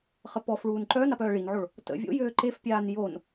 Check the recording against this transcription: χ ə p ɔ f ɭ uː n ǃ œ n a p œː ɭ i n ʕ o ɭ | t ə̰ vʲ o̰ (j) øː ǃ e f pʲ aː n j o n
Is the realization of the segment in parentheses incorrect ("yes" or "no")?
no